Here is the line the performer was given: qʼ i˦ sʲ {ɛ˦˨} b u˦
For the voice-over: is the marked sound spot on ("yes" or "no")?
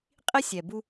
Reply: no